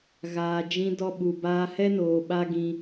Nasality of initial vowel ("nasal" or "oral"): oral